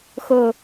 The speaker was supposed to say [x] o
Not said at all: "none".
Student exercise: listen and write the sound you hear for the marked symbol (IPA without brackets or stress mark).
x